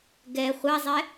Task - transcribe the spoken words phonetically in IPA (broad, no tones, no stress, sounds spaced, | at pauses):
ɡ ɛ χʷ a zˤ ɛ